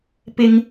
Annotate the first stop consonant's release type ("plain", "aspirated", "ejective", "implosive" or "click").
plain